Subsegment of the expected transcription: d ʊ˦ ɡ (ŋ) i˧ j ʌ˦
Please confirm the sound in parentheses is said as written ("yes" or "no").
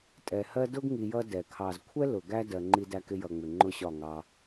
yes